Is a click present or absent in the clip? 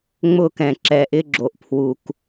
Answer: present